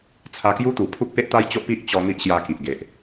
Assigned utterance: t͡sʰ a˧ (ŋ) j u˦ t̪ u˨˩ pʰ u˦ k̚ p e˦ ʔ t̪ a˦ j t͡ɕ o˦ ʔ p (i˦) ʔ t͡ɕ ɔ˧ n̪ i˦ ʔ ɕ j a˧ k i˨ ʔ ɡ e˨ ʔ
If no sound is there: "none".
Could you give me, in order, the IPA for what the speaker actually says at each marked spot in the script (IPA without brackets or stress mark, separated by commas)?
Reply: k, i˦